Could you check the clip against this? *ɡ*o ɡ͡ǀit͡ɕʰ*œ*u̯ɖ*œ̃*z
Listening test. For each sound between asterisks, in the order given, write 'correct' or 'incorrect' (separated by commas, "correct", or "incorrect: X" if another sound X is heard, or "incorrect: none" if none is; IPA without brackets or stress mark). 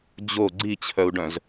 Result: incorrect: d͡ʑ, correct, correct